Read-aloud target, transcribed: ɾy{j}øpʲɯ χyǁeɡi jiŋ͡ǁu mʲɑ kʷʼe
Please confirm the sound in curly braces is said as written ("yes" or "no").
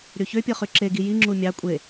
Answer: no